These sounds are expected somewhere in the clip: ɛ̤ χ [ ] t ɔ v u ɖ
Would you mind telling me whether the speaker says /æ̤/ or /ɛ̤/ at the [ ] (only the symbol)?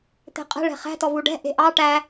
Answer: æ̤